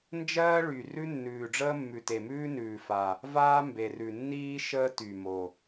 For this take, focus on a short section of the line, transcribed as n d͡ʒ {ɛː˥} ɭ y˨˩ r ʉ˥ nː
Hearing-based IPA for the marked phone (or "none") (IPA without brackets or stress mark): ɜː˥